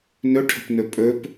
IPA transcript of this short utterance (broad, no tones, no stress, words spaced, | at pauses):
nɵʈʰə̤pnɵ pʼɵp